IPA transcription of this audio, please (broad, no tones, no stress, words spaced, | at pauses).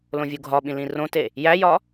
lõvʲuɡʱɒɓĩ lĩrõte | jæjɒ